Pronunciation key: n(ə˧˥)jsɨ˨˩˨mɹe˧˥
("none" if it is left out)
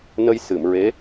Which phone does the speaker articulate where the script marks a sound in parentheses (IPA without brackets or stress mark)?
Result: ə˧